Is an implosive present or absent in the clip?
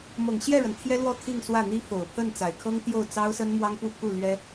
absent